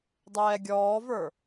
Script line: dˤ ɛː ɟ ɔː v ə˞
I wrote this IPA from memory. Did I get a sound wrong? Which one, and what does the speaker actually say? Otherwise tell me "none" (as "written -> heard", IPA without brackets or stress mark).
ɟ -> ɡʲ